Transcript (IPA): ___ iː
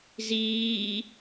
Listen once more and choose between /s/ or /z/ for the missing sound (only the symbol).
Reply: z